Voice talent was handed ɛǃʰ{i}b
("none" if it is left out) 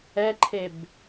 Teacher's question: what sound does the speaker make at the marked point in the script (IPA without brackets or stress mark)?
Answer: e